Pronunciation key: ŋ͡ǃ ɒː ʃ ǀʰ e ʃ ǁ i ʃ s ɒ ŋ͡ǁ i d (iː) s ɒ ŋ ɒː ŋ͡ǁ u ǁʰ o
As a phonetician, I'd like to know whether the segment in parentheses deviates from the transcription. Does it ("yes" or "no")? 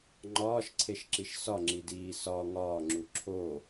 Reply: no